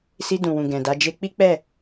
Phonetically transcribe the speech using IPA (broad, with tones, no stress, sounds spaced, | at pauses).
s i˧ d ũ˨ w ũ˨ ɡ ɛ̃˨ d a˨˦ d͡ʒ e˧ k͡p i˦ k͡p ɛ˦˨